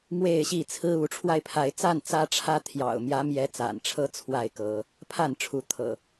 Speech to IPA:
m w e˥˨ ɪ̯ ɕ i˥˨ t͡sʰ ɹ̩˦ u˨˦ ʈ͡ʂʰ w a˧ ɪ̯ pʰ a˨˦ ɪ̯ t͡s a˥˨ n t͡s ä˦ ʈ͡ʂʰ ä˦ t̪ʰ j ɑ̰˨˩ ʊ̯ m j ä˨˦ m j ɛ˨˦ t͡s a̰˨˩ n ʈ͡ʂʰ ɤ˦ t͡sʰ w a˥˨ ɪ̯ k ɤ˨˦ | pʰ a˥˨ n ʈ͡ʂʰ u˨˦ t̪ʰ ɤ̰˨˩

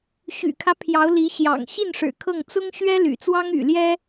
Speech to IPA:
ɕ y̰˨˩ kʰ ä˦ pʰ j ɑ˧˥ ʊ̯ l i˧˥ ɕ j ɑ̰˨˩ ŋ ɕ i˥˩ n ʂ ɻ̩˨˩ kʰ ɤ˥˩ ŋ t͡s ʊ˥ ŋ ɕ ɥ ɛ˥ l y̰˨˩ t͡s w ɑ˥ ŋ y̰˨˩ l j ɛ˥

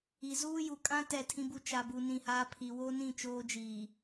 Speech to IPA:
i˨ z uː˦ j u˨ kʼ ã˦ t ɛ˦˨ tʰ ĩ˦ b u˦ t͡ʃ a˨ b u˨ n ĩ˦˨ h aː˦ pʰ i˨ w o˦ n ĩ˦˨ t͡ʃ oː˦ d͡ʒ iː˨

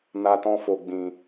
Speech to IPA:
n a˧ t ɔ̃˧ f o˧ ɡ͡b ĩ˧

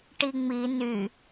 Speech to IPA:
ʈ i ŋ͡m i n y

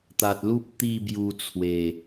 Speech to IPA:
t̪ a˨ t̚ l u˦ p̚ t̪ i˥˧ b j u˧ t͡sʰ w e˨˩

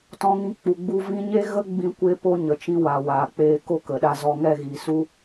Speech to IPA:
t ɔ̃˧ ŋ ĩ˧ k͡p u˨ ɡ͡b u˧ v ĩ˧ ɲ e˦ ɣ ə˦ ɡ͡b ĩ˧ kʷ e˧ p o˧ ɲ ə˨ t͡ʃ ĩ˧ w a˨ w aː˨ k͡p eː˧ k o˦ k ə˨ ɗ a˧ z ɔ˧ ŋ ɛ˦˨ ɣ i˨ s u˦

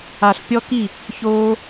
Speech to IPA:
a˨ ɬ pʲ ɔ˦ k i˦˨ | ç oː˦

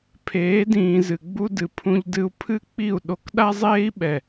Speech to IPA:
pʰ eː˨˦ d ĩː˨ z ɨ˨ ɡ͡b u˧ d ɨ˨ pʰ ũ˧ ʎ d ɨ˧ u̯ pʰ ɨ˦ k͡p i˦˨ u̯ ɗ o˨ k ɗ a˧ zˤ eː˧ i̯ ɓ ɛ˨

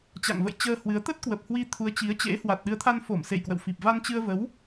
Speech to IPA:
t͡ɕ a̰˧˨ ŋ v ə̰˧˨ j t͡ɕ əː˧ h w ɨ˨˦ ə̯ t̪ ə˦˥ t̚ k w ə˨˩ p̚ h w i˧ t̪ʰ u˨˦ ə̯ t͡ɕ i˨˦ ə̯ t͡ɕ ḛ˧˥ h w a˨˩ t̚ ɗ ɨ˨˦ ə̯ t̪ʰ a˧ n f o˧˩ m s ḛ˧˨ j k w ə̰˧˨ w f i˨˩ p̚ v a˧ n t͡ɕ ɨ˧ ə̯ v ə˨˦ w

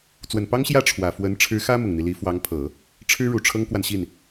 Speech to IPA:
t͡s w ə˨˩ n p ɑ˥ ŋ ɕ j ä˥˩ ʈ͡ʂʰ w ä˨˩ f w ə˧˥ n ʈ͡ʂʰ ɻ̩˧˥ x ä˥ m ʊ˨˩ ŋ n̪ i˦ l i˧˥ f w ɑ˧˥ ŋ pʰ ɤ˨˩˦ | ʈ͡ʂʰ ɻ̩˥ ɻ u˨˩ ʈ͡ʂʰ ɤ˥ ŋ k w a˨ n ɕ i˥˩ n

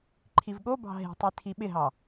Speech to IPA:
ǃʰ i v ɠ o b ɑ̤ ɦ e̤ tˤ i tʰ i ɓ ɪ ɦ ɑ

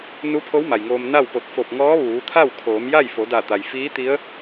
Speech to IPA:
n u˧˥ pʰ o˧˥ w m a˩ j ŋ oː˧ m n a˥˨ w p o˧˩ t̚ f o˧˩ p̚ ŋ ɔː˧˥ ʋ uː˩˧ t̪ʰ a˥˨ w kʰ oː˩˧ m j a˥˨ j f o˩˧ d a˧˩ t̪ a˩ j f iː˧˥ t̪ i˧˥ ə̯

